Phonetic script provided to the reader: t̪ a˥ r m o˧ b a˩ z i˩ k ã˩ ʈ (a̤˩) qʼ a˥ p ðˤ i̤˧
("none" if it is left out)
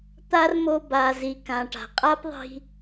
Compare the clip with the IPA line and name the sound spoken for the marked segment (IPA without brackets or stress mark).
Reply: a̤˩